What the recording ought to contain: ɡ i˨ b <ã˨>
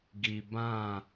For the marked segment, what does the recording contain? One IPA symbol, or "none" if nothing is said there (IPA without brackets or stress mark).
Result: ã˦˨